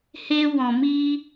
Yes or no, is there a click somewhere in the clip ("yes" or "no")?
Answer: no